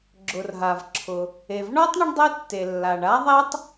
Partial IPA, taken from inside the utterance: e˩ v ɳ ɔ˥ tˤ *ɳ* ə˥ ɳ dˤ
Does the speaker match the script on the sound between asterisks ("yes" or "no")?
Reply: yes